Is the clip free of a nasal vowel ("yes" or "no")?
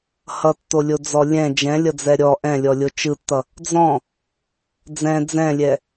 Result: no